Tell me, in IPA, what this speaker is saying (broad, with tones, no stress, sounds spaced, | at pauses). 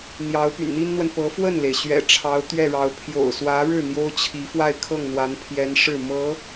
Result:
n̪ j ɑ˧˥ ʊ̯ p y̰˨˩ n n̪ i˥ n n̪ w ə˨ n p ɤ˧˥ f w ə˥˩ n l e˩ ɪ̯ ɕ ɥ ɛ̰˨˩ ʈ͡ʂʰ ɑ˧˥ ʊ̯ t̪ ɥ ɛ˥˩ ɻ ɑ˧˥ ʊ̯ pʰ j o̰˨˩ ʊ̯ s w ä˧˥ ɻ ɻ̩˥˩ n̪ j o˥ ʊ̯ t͡ɕʰ i˧˥ f w a˥˧ ɪ̯ kʰ ɤ˥˩ ŋ n̪ w a˧˥ n pʰ j ɛ˧˥ n ʂ ɻ̩˥˩ m ɤ˧˥